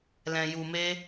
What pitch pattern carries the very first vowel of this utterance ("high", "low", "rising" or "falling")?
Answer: low